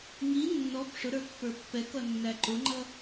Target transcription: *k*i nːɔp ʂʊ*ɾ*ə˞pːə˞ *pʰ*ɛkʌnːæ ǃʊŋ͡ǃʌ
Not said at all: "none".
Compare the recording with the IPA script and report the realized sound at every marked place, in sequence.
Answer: ŋ, ɾ, pː

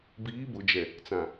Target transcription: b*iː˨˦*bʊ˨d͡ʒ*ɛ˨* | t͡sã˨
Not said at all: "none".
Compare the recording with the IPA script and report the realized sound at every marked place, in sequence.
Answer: iː˨˦, ɛ˨

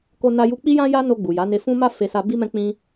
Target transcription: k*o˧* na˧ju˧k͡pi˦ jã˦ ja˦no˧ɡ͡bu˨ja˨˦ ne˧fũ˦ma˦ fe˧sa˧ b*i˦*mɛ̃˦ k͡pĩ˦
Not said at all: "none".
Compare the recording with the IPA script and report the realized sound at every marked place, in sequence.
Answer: o˧, i˦

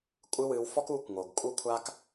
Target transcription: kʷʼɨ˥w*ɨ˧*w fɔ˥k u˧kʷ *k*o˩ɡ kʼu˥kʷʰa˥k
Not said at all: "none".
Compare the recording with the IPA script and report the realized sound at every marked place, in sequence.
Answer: ɨ˧, ŋ

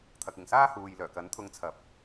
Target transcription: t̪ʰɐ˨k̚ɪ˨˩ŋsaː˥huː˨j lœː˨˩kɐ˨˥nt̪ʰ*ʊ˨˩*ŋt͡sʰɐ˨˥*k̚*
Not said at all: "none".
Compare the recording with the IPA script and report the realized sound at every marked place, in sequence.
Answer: ʊ˧, p̚

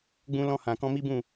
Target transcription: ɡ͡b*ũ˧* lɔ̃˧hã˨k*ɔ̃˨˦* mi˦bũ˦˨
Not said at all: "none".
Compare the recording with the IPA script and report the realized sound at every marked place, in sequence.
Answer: ũ˧, ɔ̃˧

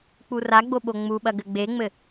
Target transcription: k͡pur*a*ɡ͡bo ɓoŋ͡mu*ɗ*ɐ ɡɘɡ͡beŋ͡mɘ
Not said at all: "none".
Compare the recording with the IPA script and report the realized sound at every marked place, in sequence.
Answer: a, ɓ

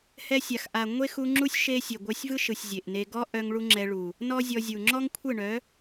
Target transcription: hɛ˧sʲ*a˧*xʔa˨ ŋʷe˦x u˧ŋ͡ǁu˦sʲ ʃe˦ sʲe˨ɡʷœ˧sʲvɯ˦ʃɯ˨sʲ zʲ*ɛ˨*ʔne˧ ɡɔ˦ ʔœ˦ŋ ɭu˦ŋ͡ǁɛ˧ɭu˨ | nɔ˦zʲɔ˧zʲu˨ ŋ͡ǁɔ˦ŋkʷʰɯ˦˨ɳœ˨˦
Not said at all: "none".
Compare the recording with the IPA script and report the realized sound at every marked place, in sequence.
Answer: a˨, e˨

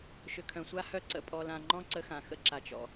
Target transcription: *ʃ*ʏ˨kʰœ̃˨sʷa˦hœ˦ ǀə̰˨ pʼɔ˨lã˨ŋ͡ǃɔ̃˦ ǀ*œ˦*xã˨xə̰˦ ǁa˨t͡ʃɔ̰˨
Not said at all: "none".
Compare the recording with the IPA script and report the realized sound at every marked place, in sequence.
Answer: ʃ, ə˦

